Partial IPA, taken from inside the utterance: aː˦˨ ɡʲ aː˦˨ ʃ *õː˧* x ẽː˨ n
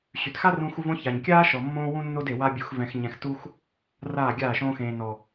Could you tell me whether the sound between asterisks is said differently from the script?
no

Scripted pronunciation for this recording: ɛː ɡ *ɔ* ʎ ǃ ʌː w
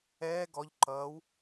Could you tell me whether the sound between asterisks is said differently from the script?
no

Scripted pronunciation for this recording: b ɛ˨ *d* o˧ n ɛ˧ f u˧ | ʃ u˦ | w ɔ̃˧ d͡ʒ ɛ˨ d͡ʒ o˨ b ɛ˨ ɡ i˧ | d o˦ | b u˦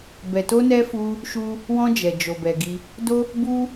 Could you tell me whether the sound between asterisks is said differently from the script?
yes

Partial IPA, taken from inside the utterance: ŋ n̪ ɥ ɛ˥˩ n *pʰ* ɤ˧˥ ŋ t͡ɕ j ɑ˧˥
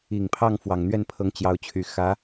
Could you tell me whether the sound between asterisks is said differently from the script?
no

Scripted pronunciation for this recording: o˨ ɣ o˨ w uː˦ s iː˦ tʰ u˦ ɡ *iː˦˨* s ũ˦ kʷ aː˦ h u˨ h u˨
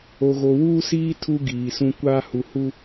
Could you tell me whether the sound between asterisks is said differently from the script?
yes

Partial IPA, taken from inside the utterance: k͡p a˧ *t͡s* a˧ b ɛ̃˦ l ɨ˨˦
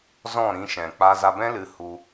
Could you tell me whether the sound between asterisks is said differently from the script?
yes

